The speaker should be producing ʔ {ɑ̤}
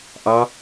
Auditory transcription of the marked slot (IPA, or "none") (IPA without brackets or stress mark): ɑ